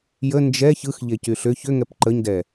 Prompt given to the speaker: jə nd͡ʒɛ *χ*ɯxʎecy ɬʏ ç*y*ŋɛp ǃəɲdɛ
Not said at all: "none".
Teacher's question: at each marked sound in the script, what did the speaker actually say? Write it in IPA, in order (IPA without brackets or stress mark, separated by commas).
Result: ç, ʏ